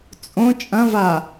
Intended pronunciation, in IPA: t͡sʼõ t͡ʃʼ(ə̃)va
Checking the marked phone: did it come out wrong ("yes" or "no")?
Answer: yes